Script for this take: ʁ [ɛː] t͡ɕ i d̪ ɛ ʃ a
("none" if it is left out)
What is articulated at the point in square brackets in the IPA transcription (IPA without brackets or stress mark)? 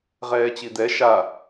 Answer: ɛː